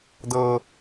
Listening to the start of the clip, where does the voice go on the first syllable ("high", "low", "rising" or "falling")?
high